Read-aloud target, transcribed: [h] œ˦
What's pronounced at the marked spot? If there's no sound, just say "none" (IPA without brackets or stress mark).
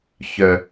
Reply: ç